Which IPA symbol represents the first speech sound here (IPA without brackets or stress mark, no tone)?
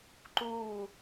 ǃ